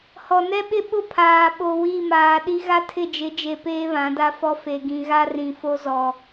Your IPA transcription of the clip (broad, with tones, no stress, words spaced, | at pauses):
hɔ˨nɛ˦ɓɪ˦ ɓʊ˦ pʰaː˨ɓo˨ wi˦˨maː˨ɗi˦ ɣa˦tʰɪ˦˨d͡ʒɪ˨˦d͡ʒe˨ peː˦βã˨˦da˦fɔ˦ fe˨ɡĩ˨ɣa˦ rĩ˨fo˦ zɔ˨